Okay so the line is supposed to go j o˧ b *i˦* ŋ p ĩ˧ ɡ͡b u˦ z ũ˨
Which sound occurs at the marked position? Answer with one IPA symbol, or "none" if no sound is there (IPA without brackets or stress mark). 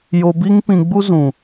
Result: i˦